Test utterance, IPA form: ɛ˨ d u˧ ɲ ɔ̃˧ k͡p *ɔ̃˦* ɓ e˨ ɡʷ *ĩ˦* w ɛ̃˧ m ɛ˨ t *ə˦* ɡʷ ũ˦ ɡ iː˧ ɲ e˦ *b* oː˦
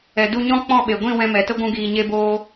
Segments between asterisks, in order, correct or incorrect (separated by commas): incorrect, incorrect, correct, correct